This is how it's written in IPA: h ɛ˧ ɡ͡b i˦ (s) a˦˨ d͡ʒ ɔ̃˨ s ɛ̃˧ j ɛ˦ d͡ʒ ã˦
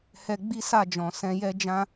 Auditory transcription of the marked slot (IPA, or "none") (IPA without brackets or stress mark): s